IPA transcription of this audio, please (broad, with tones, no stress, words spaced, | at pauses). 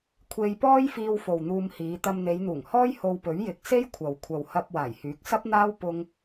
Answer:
kʷʰe˧jpɔː˥jfiː˧w fo˨wn̪uː˧mhiː˨˧ t̪ɐ˧mn̪e˨˧jn̪uː˨˩ŋhɔː˥j ho˧wpɵ˨˥ɥjɪ˨˥k̚ se˥jkʷʰɐ˨w kʷʰɐ˨whɐ˧p̚ waː˨˩jhyː˨˥k̚sɐ˥p̚n̪aː˥w pʊ˥ŋ